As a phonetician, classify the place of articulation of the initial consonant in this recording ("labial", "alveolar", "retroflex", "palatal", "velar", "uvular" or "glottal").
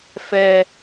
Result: labial